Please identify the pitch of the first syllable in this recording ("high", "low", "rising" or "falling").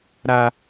high